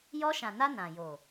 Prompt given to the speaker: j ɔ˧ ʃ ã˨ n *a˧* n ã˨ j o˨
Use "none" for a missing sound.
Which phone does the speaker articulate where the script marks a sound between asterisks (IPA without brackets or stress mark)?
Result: a˧